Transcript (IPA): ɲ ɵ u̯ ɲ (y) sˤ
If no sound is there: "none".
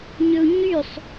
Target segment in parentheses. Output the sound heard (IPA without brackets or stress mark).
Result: y